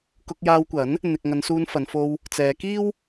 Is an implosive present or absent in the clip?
absent